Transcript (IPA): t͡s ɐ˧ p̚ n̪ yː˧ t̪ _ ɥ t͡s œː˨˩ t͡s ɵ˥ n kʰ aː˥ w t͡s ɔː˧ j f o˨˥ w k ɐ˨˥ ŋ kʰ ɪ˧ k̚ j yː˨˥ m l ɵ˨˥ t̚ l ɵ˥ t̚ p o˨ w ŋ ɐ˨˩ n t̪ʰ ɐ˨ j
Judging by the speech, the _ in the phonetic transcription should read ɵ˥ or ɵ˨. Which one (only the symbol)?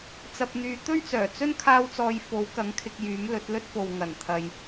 ɵ˥